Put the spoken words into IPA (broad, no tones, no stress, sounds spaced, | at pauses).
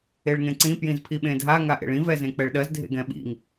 e ɭ ŋ ẽ ǀ ĩ p j ĩ z pʰ i ɓ ẽ dʱ a ŋ a ʔ ḛ ɭ ĩ v ɛ z ẽ k͡p ɛ ɭ ɗ ɜ z dʱ ḛ ɡ ɛ̃ ɓ ḭ ŋ